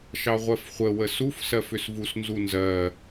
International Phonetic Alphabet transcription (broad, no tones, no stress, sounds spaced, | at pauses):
ʃ ɑ ʁʷ ɜ f χʷ ə w ə s u f s ɜ f ʏ s v u s n z u n z ɜ